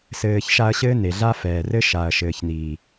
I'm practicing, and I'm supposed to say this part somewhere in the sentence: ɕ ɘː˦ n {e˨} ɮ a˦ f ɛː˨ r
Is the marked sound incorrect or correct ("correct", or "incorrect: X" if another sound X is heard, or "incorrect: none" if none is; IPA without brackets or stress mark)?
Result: correct